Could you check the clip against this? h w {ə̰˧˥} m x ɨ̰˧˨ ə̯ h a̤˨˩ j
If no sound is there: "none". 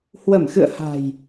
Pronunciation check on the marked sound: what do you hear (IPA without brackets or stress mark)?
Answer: ə˧˩